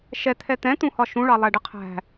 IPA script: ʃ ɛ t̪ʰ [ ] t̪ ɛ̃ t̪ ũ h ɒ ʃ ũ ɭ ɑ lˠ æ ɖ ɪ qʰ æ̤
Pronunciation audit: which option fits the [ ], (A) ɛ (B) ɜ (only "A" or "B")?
A